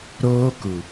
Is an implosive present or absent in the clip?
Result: absent